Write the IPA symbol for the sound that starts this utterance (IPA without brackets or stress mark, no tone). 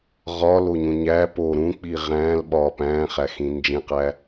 ʁ